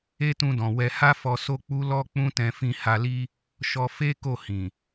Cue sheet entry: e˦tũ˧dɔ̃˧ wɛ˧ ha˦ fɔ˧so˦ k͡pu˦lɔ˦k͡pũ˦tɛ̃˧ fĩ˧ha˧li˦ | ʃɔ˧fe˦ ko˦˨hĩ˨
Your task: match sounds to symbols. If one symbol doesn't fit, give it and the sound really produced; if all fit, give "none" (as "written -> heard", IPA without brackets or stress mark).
ɔ̃˧ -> ɔ̃˨